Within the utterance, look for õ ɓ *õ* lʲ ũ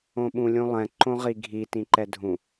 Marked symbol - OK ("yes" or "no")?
no